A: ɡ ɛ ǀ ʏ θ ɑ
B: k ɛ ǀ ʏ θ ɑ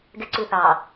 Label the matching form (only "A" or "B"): A